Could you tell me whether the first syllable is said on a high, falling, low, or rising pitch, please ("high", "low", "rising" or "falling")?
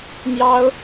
high